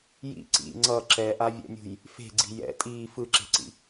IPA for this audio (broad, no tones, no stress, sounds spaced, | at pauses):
j ḭ ǀ ḭ ŋ͡ǀ ʌ ǁ ɛ ʔ a vʲ ɛ̰ mʲ ṳ j | f e̤ ɡ͡ǀ i̤ j ɛ̰ tʼ iː f ɯ ǁ e̤ ǀ ḭ